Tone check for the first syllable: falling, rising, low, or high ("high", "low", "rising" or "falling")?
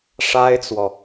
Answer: high